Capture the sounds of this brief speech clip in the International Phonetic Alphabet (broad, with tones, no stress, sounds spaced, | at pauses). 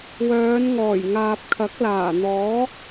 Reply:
w œː˨˧ n ŋ ɔː˨˩ j ŋ aː˨ p̚ kʰ ɐ˨˥ k̚ l aː˨˩ n̪ ɔː˨˥